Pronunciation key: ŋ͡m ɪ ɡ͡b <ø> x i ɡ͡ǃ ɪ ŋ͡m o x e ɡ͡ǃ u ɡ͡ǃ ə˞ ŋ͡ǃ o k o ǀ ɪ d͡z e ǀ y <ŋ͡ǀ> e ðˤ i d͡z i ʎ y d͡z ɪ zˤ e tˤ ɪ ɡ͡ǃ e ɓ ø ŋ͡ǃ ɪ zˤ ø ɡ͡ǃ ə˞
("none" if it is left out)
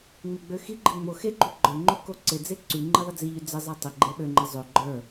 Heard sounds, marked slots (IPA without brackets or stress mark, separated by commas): ø, ŋ͡ǃ